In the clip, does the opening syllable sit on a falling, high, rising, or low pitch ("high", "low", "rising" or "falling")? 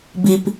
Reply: low